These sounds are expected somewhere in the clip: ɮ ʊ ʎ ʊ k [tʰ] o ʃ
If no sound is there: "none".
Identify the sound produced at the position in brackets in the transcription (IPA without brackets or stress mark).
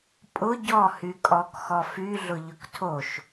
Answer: tʰ